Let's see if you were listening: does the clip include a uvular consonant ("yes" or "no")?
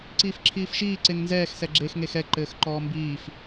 no